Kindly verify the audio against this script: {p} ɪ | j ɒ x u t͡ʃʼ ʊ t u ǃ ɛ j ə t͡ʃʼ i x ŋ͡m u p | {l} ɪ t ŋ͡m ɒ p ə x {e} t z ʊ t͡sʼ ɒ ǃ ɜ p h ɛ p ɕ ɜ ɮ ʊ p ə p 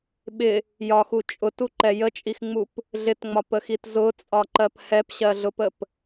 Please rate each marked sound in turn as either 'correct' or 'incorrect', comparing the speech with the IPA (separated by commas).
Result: incorrect, incorrect, incorrect